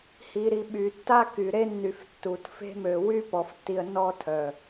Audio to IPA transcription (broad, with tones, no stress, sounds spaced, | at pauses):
h i˨ ɾ i˨ ɓ y˨ tː a˦ k y˨ ɾ e˦ nː y˨ f tː u˨ t f e̤˦ m ø˨ w y˦ p ɔ˨ f tː i˨ ə̯ n ɔ˦ tʰ œ˨